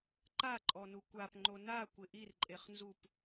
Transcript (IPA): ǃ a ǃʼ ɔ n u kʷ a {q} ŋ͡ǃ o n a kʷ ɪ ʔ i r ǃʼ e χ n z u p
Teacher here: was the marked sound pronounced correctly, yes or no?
no